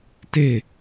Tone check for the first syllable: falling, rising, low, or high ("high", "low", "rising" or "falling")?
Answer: falling